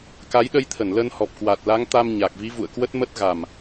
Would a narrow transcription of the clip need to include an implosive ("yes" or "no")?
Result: yes